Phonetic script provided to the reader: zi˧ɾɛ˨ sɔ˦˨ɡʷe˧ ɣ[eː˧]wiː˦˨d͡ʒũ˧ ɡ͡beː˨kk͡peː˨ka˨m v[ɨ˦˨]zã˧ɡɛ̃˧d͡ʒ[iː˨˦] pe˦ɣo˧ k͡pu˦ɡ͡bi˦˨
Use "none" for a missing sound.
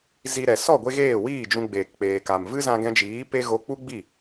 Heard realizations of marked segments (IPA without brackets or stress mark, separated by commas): eː˦˨, ɨ˦, iː˨˦